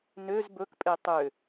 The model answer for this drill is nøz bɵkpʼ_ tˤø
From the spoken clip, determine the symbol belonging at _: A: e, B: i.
A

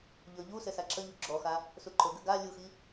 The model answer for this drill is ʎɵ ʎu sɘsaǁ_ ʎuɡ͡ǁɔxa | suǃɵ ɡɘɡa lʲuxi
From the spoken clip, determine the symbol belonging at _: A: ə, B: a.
A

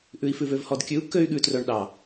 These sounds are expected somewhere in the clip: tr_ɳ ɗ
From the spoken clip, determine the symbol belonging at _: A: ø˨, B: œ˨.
B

